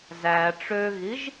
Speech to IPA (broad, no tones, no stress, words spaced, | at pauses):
zæ ʈ͡ʂøɣiʒ